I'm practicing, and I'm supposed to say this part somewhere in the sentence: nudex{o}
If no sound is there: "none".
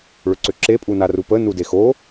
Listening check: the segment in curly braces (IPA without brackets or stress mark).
o